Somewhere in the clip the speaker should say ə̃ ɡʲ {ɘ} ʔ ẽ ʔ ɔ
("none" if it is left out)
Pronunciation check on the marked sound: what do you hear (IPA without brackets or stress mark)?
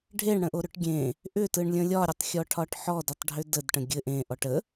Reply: ɘ